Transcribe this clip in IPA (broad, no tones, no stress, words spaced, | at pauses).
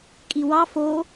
kʼiwɑ fo